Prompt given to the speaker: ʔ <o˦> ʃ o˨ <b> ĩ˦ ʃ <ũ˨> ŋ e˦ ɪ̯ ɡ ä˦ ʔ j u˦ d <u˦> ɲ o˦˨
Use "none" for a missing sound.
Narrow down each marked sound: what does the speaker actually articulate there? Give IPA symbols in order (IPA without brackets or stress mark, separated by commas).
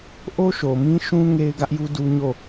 o˦, m, ũ˦, u˦